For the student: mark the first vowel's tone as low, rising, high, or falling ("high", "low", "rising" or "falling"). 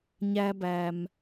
high